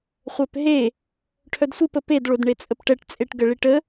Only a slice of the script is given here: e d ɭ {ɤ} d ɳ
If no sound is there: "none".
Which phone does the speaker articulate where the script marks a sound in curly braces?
o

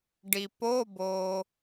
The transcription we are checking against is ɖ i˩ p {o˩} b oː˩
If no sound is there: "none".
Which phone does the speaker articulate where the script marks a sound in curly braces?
o˧˥˧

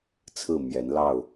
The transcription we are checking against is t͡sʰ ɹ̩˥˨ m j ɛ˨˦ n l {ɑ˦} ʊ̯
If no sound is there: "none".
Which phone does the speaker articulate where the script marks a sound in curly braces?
ɑ˥˨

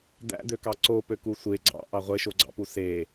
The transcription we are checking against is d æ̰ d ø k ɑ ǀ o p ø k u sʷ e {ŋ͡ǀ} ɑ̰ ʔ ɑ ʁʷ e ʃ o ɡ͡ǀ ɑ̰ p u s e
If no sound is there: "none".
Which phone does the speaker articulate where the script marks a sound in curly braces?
ɡ͡ǀ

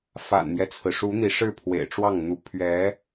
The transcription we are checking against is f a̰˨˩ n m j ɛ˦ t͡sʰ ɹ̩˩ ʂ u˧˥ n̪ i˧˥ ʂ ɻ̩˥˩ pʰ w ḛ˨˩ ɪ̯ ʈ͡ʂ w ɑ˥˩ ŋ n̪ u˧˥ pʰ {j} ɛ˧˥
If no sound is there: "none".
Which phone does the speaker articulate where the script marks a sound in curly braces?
ɥ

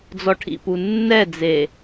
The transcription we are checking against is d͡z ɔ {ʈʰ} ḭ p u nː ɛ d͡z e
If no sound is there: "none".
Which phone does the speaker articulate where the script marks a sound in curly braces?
ʈʰ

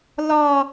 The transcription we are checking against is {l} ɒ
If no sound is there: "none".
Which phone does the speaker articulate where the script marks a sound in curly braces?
l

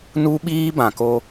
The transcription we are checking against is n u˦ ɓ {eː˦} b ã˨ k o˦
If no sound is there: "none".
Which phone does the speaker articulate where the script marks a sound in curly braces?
iː˦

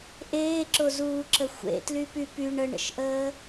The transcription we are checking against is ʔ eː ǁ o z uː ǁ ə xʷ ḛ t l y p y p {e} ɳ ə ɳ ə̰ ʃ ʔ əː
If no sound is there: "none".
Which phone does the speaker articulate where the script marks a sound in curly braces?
y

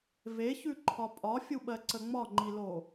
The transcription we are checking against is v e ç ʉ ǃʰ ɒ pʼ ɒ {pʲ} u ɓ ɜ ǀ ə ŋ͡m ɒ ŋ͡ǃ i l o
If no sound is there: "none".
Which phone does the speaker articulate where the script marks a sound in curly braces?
fʲ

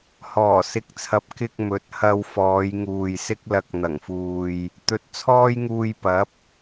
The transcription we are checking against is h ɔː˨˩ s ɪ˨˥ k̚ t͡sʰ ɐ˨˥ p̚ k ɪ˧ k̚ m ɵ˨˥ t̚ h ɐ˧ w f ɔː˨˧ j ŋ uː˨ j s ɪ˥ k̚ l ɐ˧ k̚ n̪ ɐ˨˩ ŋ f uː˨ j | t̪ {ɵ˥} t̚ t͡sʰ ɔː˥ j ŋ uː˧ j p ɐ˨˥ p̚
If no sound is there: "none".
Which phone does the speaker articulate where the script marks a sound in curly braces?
ɵ˨˥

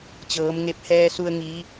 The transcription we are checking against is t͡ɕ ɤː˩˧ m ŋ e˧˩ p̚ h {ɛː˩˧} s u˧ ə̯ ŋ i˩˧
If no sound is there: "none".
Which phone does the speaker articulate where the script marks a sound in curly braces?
ɛː˧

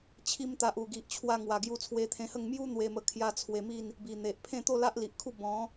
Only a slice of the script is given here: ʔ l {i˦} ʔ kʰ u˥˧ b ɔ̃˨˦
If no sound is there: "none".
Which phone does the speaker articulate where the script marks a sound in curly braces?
i˨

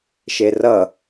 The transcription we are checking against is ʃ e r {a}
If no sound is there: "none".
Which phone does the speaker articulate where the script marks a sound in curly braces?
ʌ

